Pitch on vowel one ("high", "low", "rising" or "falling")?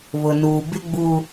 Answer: low